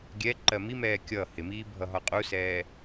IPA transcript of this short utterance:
ɡʲ ɛ ǃ ɜ m i m ɛː kʲ ʌ h ɪ m iː bʱ ʌ ɦ ɒ qʼ u s ɛː

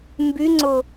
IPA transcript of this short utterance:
m b y ŋ͡ǀ ʊ

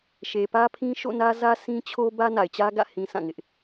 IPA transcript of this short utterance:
ʃ e˨ p ä˦ pʰ ĩ˦ ʃ o̰˦˨ n ä˦ z ä˦ sʰ ĩ˦ t͡ɕʰ o˦ b ä˦ n a˨ ɪ̯ t͡ɕ ä˦ ɡ ä̰˦˨ h ĩ˨ sʰ ã˦˨ ŋ ɪ˦ ʔ

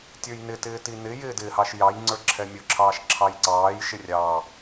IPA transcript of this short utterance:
tʲ ə˞ j n ɪ t ɪː t i n ɪ j ɪː d ɪː h ɑ ʃ j ɑ j ŋ͡ǀ ə˞ ǁʰ ɛ mʲ ʊ ǁʰ ɑː ʃ ǁʰ ɑ j ǀ ɑː j ʃ ɪ rʲ ɑ

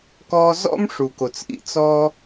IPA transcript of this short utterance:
k ɔ˧ z ɔ̰˥ m ʂ u˩ k o˩ t͡s ʔ ḭ˧ t͡s ɔ˧

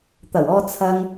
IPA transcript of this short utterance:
t̪ ɐ˨˩ w ɔː˧ t͡sʰ ɐ˥ ŋ

